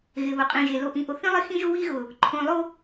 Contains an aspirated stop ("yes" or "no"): yes